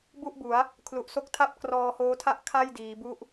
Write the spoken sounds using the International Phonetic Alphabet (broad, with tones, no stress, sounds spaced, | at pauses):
b u˥˩ ʔ b u˩˦ a̯ | kʰ l u˨˩ ʔ s o˦˥ k̚ tʰ a˥˩ p̚ k r ɔː˧ h oː˦˥ tʰ a˥˩ ʔ kʰ a˥˩ j d iː˩˦ b u˦˥ ʔ